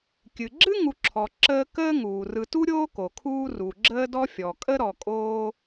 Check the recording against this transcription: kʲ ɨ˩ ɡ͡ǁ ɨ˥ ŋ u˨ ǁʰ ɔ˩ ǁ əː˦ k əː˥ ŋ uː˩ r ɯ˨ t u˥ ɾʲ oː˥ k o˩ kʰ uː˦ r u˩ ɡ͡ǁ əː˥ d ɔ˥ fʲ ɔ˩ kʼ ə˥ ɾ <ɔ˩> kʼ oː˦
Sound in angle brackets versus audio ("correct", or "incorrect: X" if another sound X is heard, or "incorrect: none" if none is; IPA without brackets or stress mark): correct